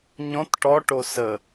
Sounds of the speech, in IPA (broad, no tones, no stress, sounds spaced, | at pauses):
ɲ ɔ̃ t ʈ ɔ ʈ o s ə